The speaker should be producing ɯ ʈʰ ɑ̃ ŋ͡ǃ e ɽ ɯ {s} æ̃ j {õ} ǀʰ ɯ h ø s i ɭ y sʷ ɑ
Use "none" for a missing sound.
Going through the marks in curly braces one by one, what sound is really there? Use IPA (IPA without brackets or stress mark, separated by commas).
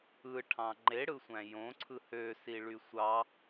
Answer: sʷ, õ